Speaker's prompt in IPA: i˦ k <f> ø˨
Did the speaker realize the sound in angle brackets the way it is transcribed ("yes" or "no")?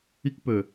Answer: no